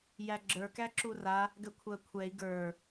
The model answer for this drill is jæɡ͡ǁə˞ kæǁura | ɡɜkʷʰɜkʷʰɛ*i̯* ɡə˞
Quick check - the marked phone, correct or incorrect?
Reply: correct